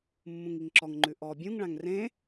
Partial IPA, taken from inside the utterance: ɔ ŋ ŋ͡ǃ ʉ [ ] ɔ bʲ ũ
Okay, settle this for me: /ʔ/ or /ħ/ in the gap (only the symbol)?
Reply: ʔ